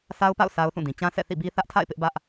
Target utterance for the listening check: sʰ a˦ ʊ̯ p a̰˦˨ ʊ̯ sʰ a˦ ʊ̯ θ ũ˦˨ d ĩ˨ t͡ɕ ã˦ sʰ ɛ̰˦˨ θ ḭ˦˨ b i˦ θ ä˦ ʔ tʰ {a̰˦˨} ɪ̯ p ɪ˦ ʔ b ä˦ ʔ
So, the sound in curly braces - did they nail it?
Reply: yes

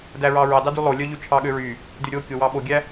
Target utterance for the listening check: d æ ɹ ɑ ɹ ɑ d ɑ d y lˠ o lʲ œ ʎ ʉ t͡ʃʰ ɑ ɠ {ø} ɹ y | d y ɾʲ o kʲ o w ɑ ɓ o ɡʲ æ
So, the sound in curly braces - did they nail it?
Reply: yes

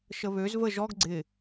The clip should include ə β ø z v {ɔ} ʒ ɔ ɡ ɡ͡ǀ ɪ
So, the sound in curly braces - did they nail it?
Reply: no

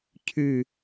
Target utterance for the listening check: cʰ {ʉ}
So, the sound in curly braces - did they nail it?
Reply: yes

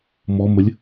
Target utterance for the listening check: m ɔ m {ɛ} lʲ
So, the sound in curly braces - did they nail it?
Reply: no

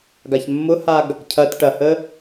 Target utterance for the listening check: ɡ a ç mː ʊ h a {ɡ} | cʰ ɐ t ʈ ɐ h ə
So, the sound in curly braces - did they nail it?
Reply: yes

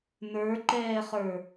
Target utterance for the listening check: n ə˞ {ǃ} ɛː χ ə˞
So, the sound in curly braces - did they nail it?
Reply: yes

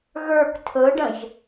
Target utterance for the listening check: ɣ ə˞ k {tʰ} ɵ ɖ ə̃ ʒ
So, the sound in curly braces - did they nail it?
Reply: yes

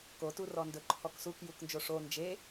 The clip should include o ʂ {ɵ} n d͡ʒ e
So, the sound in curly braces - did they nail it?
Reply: no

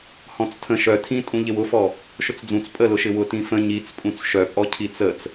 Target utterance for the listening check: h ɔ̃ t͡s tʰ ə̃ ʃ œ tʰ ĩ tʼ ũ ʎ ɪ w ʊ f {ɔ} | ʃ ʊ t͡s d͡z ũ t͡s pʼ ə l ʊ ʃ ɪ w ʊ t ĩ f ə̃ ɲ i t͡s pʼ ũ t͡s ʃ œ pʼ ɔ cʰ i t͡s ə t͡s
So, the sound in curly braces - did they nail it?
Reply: yes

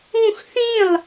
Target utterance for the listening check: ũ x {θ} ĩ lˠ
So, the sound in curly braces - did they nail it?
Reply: yes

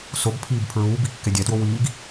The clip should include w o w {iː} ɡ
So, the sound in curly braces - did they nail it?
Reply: yes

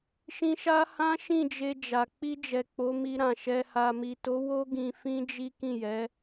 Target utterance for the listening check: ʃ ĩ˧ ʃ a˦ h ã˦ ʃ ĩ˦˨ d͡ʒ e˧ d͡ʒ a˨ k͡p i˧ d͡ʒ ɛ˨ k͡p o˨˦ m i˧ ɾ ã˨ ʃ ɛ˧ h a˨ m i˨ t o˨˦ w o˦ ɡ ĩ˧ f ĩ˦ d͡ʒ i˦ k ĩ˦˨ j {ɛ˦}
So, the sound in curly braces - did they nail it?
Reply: no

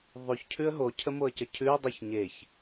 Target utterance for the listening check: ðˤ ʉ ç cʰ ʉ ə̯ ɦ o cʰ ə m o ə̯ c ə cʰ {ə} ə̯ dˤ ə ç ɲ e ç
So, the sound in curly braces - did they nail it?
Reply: no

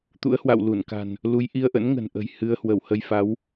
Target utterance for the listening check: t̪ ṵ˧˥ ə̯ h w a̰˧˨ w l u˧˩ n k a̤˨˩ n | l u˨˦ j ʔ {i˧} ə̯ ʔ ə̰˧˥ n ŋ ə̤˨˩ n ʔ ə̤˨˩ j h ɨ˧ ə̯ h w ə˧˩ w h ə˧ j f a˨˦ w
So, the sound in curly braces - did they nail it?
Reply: yes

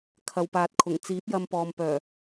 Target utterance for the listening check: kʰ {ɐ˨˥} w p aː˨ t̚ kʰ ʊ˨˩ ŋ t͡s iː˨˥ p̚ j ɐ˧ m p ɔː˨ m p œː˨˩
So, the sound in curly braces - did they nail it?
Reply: no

